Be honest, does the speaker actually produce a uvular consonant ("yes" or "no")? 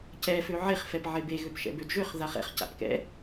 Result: yes